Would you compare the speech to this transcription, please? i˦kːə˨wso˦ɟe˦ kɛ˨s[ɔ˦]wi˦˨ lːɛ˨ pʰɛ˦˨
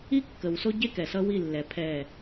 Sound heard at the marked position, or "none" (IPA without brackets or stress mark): ʌ˦